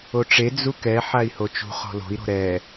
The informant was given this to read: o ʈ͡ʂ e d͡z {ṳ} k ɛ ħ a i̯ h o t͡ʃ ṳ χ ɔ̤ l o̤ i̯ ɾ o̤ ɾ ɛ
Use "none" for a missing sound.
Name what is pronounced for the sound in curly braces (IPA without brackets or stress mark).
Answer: u